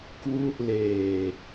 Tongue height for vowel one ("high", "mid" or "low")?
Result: high